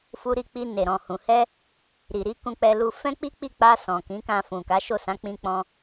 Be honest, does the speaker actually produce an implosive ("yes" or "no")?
no